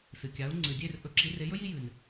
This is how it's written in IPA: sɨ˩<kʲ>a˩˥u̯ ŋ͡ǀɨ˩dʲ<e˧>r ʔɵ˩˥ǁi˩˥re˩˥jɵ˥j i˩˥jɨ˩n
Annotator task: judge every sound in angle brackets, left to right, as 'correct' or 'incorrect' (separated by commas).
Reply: correct, incorrect